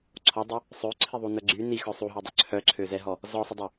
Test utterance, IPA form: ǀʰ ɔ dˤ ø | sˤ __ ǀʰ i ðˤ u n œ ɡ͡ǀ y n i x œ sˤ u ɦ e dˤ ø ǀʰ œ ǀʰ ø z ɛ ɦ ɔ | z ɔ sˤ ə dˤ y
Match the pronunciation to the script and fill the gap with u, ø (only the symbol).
ø